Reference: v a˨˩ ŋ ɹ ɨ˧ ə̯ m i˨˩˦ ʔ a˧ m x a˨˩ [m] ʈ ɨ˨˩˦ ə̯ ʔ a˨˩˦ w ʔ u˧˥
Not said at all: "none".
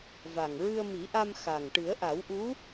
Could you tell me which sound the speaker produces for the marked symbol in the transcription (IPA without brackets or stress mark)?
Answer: ŋ